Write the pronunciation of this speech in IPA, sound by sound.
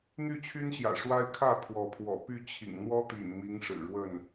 n̪ y˥˨ t͡ɕʰ y˦ n ɕ j ä̰˨˩ ʂ w a˦ ɪ̯ kʰ ä˥˨ pʰ w ɔ˨˦ pʰ w ɔ̰˨˩ p y˥˨ t͡ɕʰ ḭ˨˩ ŋ n̪ w ɔ˦ t̪ ḭ˨˩ n m i˨˦ ŋ ʂ ɻ̩˨˩ ɻ w ə˥˨ n

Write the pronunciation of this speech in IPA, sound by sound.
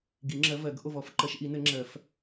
ɡ i˨˩˦ ŋ͡ǁ ɜ˨˦ v ɜ˨˩˦ ɡ ʔ o˦˨ v ɔ˨˦ f ǃ ɜ˨˦ ʃ ʔ i˨˩˦ n ɘ˨˩˦ ŋ͡ǁ ɜ˨˩˦ f

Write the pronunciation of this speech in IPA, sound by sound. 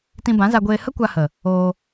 t ĩ˧ b ã˨˦ z a˧ ɡʷ eː˧ h ə˦ kʷ a˧ h ə˨ | oː˧

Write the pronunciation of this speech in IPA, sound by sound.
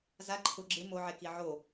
z a ǃʰ ʊ ɡ͡ǁ ɪ m o ʕ e k i ʕ o

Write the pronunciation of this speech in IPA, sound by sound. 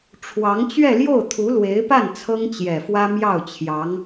ʈ͡ʂʰ w ɑ˧˥ ŋ t͡ɕ ɥ ɛ˥˧ l j o˥˩ ʊ̯ t̪ʰ u˧˥ l w e˧˥ ɪ̯ p a˥˩ n t͡sʰ ɤ˥ ŋ t͡ɕ j ɛ˨˩ f w ä˥ m j ɑ˥˩ ʊ̯ t͡ɕʰ j ɑ˧˥ ŋ

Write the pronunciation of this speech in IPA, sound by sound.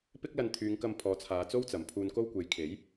p ɪ˥ k̚ l ɐ˧ n t̪ʰ yː˨˧ ŋ k ɐ˧ m pʰ ɔː˨˧ t͡sʰ aː˨˧ t͡s o˥ w t͡s ɐ˨˩ m pʰ uː˧ n k o˥ w kʷ e˨˥ j kʰ e˨˥ j

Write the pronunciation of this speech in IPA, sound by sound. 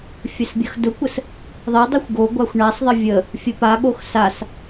fʲ ə s bʲ ɐ x d ʊ kʷ ə s | ðˤ ə dˤ ʊ xʷ ɡ o ɡʷ a xʷ ɳ a sˤ ðˤ ə vʲ ə | fʲ ə p a ɠ o x s a s

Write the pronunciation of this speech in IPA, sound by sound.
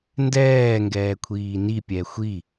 n d ɛː ŋ ɡ ɛː kʷʰ iː n i pʲ ɛ xʷ i

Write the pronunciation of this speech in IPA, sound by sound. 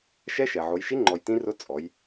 ʃ ɛ˧˥ ʃ ɛ˩ ʕ o˩˧ j ʃ i˧˥ ŋ͡ǃ ɔ˩ j t ĩ˧˥ r ʊ˧˥ t͡sʼ ɔ˩˧ j

